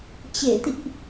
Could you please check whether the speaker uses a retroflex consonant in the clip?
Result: no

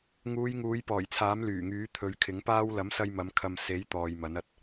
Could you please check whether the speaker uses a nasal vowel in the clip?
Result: no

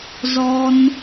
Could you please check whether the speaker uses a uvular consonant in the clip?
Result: no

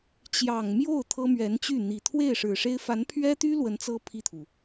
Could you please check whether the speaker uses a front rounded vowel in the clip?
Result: yes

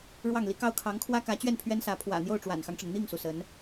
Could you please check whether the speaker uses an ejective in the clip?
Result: no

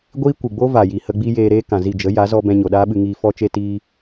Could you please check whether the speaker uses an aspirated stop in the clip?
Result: no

